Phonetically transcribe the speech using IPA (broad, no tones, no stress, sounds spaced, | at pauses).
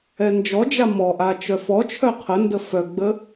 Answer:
ɛ n d͡ʒ ɔ d͡ʒ a m ɔ ʔ a t͡ʃ œ f ɔ t͡ʃʰ œ qʰ ə n d ə f œ ɡ͡b ə